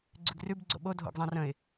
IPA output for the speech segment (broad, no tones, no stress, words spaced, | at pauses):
ɡ͡ǀʉɡrʉb ɡ͡ǀo̰ɓodʱo̰ɡzˤãr ə̃ɪ̯